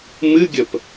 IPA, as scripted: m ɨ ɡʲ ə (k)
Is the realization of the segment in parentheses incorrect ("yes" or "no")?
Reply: yes